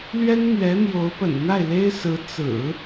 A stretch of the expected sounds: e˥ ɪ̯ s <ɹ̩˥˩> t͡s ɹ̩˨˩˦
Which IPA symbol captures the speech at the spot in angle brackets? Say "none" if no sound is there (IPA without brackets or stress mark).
ɹ̩˧˥